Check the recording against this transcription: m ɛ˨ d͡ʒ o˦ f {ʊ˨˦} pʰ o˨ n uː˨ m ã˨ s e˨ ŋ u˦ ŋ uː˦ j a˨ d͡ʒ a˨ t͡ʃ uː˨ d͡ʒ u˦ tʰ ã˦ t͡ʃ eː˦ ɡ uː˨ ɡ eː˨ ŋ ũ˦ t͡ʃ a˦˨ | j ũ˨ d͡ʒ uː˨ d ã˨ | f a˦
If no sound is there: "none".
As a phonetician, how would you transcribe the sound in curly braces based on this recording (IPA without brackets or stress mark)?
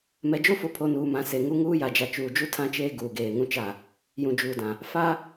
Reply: ʊ˨˦